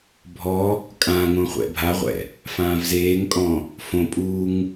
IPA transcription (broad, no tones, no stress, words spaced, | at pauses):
bʱɔ | kʼã ŋõχʷɛ̰bʱaʁʷɛ̰ | fãːvzeːŋkʼɔ̃ | fõpʼuːŋ